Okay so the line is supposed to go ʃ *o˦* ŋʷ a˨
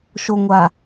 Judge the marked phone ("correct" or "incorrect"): incorrect